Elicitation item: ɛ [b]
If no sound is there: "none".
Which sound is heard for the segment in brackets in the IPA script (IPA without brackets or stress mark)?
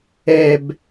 b